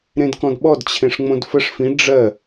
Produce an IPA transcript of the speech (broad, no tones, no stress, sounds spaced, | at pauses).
ɾ ẽ d k ɔ̃ d ɓ ɔ d t͡ɕʰ ẽ ʂ ŋ͡m õ d f ə ʂ f ĩ ɖ͡ʐ ɜ